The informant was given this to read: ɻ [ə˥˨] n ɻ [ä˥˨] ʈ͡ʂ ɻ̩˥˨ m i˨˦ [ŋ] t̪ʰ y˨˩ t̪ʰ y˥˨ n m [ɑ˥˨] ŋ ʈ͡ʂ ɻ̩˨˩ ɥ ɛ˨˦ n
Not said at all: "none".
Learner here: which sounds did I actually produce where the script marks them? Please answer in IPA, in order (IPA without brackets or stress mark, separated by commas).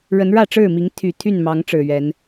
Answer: ə˨˦, ä˥˨, ŋ, ɑ˨˦